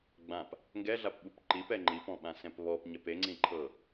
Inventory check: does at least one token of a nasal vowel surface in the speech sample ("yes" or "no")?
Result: yes